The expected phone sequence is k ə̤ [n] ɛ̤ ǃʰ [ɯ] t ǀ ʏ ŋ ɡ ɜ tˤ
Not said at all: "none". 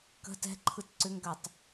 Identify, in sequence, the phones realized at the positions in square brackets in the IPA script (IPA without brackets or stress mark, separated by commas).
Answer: t, ɯ